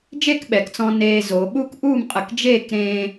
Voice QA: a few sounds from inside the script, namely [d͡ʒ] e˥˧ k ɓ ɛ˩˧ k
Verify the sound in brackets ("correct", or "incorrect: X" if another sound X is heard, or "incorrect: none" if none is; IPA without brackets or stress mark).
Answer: correct